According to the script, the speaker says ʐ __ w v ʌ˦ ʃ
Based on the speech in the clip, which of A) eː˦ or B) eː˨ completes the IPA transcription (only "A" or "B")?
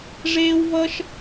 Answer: A